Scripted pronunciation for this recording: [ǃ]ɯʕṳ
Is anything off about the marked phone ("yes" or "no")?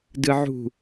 yes